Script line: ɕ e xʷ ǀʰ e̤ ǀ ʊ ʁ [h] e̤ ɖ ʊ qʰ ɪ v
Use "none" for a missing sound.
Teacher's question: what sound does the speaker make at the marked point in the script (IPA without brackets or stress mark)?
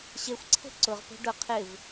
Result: p